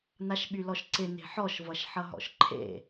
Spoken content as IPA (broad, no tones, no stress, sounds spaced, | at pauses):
n a ʃ ɓ y l ɔ ʃ ǀ ɪ n e̤ ħ ɔ ʃ v ʌ ʃ ħ ʌ ɦ ɔ̰ ʃ ǃʰ ḛ